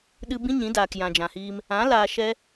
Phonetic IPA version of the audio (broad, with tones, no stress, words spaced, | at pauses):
ɗɨ˦ bĩ˦ɲĩ˨˦ daː˨kjã˨d͡ʒã˨hiː˧m | ã˨˦ laː˧ʃɛ˦